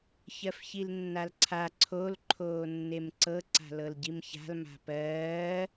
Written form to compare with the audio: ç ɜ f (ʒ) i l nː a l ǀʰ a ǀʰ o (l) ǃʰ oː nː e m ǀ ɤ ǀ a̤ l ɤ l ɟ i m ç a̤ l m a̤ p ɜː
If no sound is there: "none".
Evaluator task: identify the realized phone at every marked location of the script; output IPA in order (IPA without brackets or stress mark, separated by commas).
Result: ç, l